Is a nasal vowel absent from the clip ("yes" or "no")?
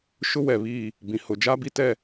no